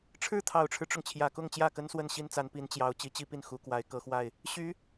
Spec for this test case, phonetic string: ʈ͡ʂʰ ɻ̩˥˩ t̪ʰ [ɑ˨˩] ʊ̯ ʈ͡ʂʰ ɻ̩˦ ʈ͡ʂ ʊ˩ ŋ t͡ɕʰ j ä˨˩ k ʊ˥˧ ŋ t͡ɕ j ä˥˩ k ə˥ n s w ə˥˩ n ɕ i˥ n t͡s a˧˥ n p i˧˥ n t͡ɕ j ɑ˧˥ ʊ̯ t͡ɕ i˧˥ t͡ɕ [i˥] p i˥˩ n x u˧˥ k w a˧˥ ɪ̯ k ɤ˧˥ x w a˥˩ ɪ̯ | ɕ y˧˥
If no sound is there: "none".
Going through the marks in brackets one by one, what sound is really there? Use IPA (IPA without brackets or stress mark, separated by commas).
ɑ˨˩, i˥